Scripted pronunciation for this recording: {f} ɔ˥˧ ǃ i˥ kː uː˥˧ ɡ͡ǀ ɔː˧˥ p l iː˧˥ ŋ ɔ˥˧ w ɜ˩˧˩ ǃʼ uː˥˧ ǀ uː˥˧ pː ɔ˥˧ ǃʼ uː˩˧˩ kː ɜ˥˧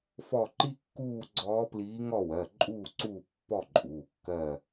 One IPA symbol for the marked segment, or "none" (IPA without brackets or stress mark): f